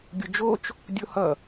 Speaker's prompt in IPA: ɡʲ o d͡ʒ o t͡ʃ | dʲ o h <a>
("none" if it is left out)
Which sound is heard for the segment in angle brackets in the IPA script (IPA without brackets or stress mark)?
ʌ